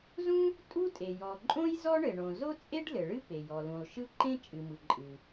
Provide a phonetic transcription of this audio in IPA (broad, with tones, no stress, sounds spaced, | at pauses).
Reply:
z ũ˥ | tʼ u˥ tʼ e˩ j ɔ˩ ǃʼ õ˥ j z ɔ˥ ɳ ɘ˩ ɳ õ˩ z o˥ t͡sʼ e˥ ɖ l ɘ˩ ɭ ɨ˥ p e˩ j ɔ˩ l ũ˩ lˠ ʃ ɯ˥ ǃ ẽ˥ t͡ʃʼ ɨ˩ m ɯ˩ ǃʼ ɨ˩